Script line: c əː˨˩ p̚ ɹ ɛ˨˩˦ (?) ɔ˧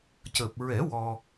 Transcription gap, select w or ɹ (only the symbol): w